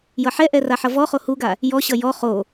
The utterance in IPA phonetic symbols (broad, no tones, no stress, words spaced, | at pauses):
jʌħɛʔɛ raħʌvɔχo huɡa | jɔɕʌ jɔ χo